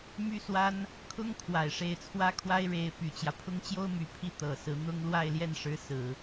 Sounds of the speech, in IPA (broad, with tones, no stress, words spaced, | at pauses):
my˥ swa˥n | kʰʊ˥ŋ kʰwa˨˩ɪ̯ʂe˥˩ɪ̯t͡sʰwä˥kʰwa˥ɪ̯ ɻe˧˥ɪ̯py˨˩t͡ɕjä˦ pʰʊ˥ŋt͡ɕjo˥ʊ̯my˨˩pʰi˥˩ t̪ɤ˨˩sɹ̩˧˥ n̪ʊ˥ŋ lwa˥˧ɪ̯ljɛ˥˩nʂɻ̩˧˥ sɹ̩˨˩˦